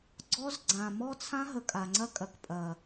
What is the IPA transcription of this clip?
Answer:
ɡ͡ǀ ɔ˦ z ɡ͡ǀ ã˨ m ɔ˦ t͡sʰ ã˦ ɦ ə˨ kʼ a˨ ŋ͡ǀ ɐ˦ kʼ ɐ˨ k pʼ ɐ˨

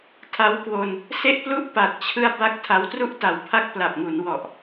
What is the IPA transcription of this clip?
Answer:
tʰ a˦˥ w k w o˧ n | s e˥˩ ʔ p l u˥˩ ʔ p a˨˩ t̚ t͡ɕʰ ɯ˧ a̯ b a˥˩ k̚ tʰ a˦˥ w t r u˥˩ ʔ t a˨˩ w pʰ a˦˥ k̚ p l a˨˩ p̚ ŋ u˩˦ n w ɔ˨˩ ʔ

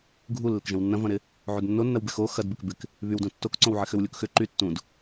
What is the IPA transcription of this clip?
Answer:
ɡʱ u lː ɪ k ʒ ɐ̃ w nː ɐ̃ v ɐ̃ ɾ ɪ | ʕ u d nː o nː ɐ w b ɪ x o x ɐ d b ɪ k b ɪ k | β y w d ũ tː o k ǀ õ w ʕ ɪ x ʏ w lʲ u k x ʏ ǃ y tː ũ d

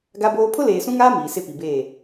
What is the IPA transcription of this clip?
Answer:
ɡ a˦ b oː˦ pʰ ʊ˦ l eː˨ s ũ˦ ŋ aː˦ m iː˨ s ɪ˦ p i˨ b eː˦˨

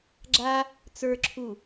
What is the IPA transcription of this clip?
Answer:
ɡ͡ǁ a | t͡s ə˞ ǁʰ u

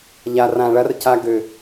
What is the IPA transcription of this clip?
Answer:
ʎ a˨ r ã˨ ɭ ɐ˦ r c a˧ ɡ ø˨

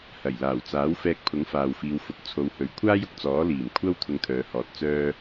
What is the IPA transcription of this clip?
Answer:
h ɐ˨˩ j l aː˨˩ w t͡s aː˨˥ w f ɛː˧ k̚ pʰ ʊ˨˥ ŋ f aː˨ w f iː˨˧ w f ʊ˨˥ k̚ t͡sʰ o˨˧ w h ɵ˨ ɥ kʷʰ aː˥ j ʊ˧ k̚ t͡s ɔː˨˥ l iː˨˩ m kʷʰ ɐ˥ w t̪ʰ ʊ˧ ŋ t̪ʰ œː˨˧ h ɔː˨ t̚ t͡s œː˥

